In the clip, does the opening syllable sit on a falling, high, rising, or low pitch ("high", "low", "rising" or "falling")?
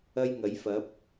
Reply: high